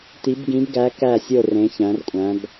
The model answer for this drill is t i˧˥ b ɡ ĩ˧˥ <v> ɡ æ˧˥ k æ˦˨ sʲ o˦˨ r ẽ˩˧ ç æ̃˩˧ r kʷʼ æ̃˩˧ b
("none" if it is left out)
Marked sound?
b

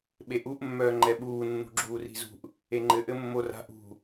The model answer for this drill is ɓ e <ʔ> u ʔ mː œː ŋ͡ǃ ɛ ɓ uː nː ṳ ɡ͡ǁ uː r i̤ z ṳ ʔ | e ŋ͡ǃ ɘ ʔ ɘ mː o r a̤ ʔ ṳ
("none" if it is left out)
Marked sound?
ʔ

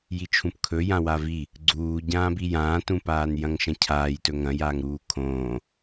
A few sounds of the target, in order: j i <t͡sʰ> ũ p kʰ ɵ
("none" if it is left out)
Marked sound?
t͡ʃʰ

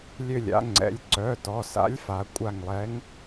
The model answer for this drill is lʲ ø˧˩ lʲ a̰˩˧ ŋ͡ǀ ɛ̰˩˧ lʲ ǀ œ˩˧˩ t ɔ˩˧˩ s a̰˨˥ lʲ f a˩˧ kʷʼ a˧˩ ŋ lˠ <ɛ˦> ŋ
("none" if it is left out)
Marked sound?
ɛ˨˥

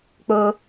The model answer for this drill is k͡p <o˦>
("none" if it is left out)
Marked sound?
o˦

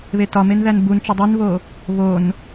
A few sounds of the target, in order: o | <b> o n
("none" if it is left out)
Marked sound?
β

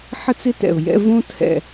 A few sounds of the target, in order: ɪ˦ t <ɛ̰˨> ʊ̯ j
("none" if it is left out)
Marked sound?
ɛ̰˨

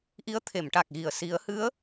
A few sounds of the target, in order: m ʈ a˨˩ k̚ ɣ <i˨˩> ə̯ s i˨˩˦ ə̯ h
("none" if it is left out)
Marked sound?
i˨˩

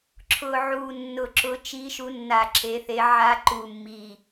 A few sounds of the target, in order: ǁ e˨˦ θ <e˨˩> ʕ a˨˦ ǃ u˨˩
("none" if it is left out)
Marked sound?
e˨˦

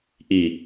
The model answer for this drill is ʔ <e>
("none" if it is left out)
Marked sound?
i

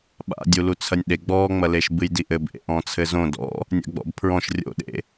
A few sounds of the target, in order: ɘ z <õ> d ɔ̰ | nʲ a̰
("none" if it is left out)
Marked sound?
õ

